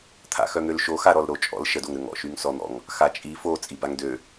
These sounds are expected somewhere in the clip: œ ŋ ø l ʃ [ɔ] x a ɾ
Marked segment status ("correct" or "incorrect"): incorrect